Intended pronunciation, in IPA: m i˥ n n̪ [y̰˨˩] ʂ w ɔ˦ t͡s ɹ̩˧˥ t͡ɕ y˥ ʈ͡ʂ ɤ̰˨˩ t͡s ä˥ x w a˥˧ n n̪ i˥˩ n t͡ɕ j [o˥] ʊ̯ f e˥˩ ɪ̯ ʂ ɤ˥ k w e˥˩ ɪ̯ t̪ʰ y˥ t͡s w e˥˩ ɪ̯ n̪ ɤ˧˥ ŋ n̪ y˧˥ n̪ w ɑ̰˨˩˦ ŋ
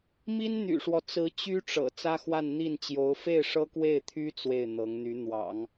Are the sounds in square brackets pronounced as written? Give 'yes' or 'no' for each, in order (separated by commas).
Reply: yes, no